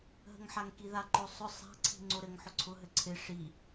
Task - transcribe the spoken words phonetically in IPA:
ɦ ə̤ ŋ ħ a ŋ k i ð a ǃ o sˤ ʊ sˤ a̤ ǀʰ i̤ ŋ͡ǀ o ɾ ɘ ŋ ħ ʊ ǀʰ ʊ ɦ ɘ ǀʰ ɪ ʂ i

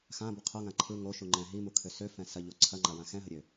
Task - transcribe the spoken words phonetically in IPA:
x ã b ə qʰ o ŋ ã ǃʰ ɯ ŋ o ʃ u ŋ͡ǃ ɛ̃ ɦ i m u kʰ ø s ø f ɛ̃ s ɐ ʎ o ǀʰ ɐ ŋ͡ǃ a w ã x ɛ̃ ɦ ə ɾʲ ø

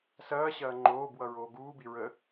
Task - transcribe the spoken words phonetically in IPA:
s ɐː ɕ ɐː ŋ͡ǃ oː b w ʌ ɹ oː ɡ uː b i ɹ ə

